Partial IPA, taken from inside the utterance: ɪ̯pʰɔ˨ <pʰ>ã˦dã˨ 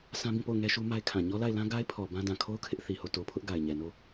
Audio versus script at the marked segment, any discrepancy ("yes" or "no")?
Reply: yes